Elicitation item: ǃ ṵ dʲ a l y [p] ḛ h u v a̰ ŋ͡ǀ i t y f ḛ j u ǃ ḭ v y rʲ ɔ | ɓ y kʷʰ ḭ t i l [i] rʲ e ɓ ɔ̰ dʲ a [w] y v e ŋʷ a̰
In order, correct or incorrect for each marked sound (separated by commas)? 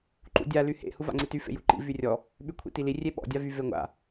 incorrect, correct, incorrect